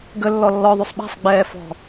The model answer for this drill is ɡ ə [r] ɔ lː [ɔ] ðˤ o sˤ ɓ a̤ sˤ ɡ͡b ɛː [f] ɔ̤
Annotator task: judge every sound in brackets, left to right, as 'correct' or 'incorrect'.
incorrect, correct, correct

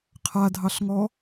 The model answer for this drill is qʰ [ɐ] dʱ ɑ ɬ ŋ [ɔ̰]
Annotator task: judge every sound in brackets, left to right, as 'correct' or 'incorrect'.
incorrect, incorrect

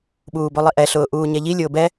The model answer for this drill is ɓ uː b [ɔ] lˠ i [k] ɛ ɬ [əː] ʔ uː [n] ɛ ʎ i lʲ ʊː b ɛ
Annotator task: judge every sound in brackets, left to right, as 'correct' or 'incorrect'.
incorrect, incorrect, incorrect, incorrect

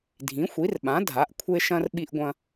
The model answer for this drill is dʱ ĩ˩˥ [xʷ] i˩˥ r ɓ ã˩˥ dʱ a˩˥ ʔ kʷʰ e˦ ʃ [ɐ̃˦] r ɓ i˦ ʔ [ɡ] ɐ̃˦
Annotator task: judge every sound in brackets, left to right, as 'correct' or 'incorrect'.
correct, correct, incorrect

